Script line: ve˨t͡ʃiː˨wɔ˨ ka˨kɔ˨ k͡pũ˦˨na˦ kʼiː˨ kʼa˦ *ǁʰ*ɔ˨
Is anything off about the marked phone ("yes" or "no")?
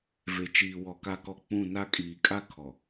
yes